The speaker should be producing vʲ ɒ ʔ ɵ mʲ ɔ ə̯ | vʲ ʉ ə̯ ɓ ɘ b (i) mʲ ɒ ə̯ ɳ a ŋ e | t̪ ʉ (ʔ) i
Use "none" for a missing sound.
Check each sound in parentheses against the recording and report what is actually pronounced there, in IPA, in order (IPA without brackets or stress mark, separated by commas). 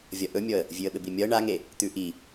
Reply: i, ʔ